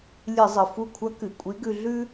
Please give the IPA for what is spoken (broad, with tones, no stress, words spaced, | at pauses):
lʲɨ˧˩˧zˤɨ˩ fu˧˩kʷʰɐ˧˥ kɨ˩ kʷʼi˧˥ɡʉ˧ɮʉ˥